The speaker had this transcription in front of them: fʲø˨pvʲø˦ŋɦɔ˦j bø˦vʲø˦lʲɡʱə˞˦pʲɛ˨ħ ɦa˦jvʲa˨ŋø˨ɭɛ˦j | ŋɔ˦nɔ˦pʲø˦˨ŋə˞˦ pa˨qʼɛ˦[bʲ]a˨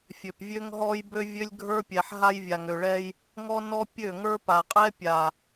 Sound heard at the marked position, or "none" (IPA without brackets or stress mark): pʲ